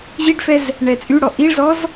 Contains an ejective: yes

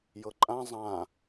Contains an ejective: yes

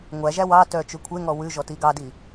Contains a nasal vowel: no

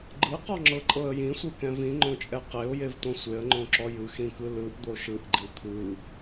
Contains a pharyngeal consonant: no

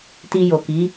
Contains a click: no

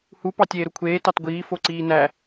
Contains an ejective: no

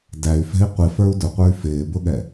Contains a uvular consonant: yes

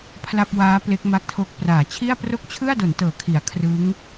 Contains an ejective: no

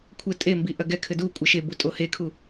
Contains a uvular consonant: no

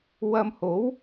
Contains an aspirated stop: no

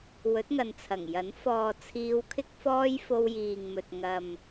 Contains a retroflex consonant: no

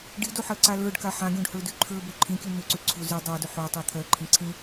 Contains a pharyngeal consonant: yes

